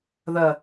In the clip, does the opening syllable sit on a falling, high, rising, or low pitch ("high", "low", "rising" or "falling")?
low